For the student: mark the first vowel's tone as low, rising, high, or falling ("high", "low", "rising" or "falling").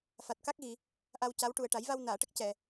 low